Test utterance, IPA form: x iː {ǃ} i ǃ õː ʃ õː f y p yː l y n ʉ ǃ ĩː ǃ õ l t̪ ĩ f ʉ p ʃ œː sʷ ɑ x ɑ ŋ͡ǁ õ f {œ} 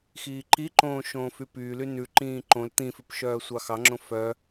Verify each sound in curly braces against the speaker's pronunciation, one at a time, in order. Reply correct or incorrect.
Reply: correct, correct

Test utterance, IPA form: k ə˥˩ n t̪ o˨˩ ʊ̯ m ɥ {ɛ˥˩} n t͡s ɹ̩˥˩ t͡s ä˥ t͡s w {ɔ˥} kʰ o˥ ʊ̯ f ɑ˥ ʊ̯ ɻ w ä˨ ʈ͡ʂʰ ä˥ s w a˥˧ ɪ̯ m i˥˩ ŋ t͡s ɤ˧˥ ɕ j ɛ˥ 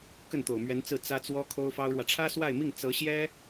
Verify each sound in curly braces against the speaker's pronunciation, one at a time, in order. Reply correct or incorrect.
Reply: incorrect: ɛ˧˥, correct

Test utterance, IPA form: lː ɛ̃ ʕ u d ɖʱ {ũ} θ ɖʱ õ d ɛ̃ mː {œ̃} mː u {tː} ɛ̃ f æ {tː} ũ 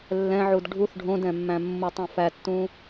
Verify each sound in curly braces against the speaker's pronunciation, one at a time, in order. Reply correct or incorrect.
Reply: incorrect: u, incorrect: æ̃, incorrect: tˤ, correct

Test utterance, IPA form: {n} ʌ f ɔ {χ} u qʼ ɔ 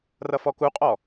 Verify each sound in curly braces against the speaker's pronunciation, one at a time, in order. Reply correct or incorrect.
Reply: incorrect: r, incorrect: k

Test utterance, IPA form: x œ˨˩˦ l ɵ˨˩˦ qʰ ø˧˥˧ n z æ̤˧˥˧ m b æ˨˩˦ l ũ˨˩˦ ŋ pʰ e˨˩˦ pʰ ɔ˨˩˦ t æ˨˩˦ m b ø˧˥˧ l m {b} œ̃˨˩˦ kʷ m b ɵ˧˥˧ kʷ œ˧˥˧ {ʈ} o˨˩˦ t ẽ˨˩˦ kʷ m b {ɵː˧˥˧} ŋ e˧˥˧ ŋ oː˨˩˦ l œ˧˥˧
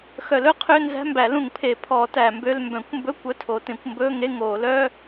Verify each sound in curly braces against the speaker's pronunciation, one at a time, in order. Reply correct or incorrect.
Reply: correct, incorrect: tʰ, correct

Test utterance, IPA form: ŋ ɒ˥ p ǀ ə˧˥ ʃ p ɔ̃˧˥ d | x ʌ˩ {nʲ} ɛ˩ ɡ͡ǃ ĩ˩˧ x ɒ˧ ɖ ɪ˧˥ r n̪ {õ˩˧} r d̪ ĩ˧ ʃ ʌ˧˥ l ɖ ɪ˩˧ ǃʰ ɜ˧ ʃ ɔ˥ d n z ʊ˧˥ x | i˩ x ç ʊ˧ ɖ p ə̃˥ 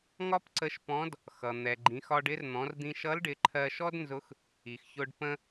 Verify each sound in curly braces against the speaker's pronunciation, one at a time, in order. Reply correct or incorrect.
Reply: incorrect: n̪, incorrect: ɔ̃˩˧

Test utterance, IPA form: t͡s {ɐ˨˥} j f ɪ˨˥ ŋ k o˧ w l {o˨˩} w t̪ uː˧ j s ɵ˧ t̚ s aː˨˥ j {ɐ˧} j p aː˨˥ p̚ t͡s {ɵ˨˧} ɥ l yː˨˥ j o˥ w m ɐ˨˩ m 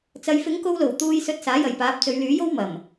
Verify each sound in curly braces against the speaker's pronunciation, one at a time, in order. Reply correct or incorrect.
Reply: incorrect: ɐ˨˧, correct, incorrect: ɐ˨, correct

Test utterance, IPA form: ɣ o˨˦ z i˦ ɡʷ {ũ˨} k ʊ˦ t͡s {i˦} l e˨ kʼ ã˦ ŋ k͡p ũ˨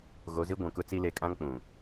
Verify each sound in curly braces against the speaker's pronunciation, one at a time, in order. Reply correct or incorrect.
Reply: correct, correct

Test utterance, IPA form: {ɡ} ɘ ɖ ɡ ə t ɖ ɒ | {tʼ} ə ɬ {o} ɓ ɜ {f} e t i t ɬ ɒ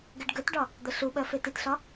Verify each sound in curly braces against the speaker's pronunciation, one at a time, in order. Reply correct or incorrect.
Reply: correct, incorrect: d̪, incorrect: u, correct

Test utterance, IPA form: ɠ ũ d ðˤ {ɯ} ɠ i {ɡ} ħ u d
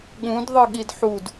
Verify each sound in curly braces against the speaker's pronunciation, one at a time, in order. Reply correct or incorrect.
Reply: correct, incorrect: d

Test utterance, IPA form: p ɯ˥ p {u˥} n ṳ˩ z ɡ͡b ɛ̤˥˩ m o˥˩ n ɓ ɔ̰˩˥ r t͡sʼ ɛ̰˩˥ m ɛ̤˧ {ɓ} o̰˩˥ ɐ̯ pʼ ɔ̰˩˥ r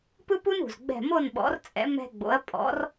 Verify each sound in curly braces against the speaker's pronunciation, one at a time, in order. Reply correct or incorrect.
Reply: correct, incorrect: ɡ͡b

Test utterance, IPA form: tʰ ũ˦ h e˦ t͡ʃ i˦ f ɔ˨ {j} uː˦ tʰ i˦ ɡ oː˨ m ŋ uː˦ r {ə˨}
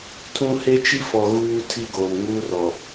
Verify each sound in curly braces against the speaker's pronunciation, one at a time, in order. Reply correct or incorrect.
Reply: incorrect: ɣ, incorrect: ɔ˨

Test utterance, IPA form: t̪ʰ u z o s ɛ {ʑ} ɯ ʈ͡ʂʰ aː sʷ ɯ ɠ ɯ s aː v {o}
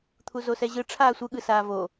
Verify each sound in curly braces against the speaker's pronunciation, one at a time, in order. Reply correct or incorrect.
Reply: correct, correct

